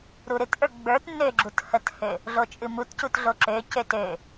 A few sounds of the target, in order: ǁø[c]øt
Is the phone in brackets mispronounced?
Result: no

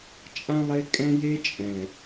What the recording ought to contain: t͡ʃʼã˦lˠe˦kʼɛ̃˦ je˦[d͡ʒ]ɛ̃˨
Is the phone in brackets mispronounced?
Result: yes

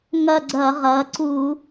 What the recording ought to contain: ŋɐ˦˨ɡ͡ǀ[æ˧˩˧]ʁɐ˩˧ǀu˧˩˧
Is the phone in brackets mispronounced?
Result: yes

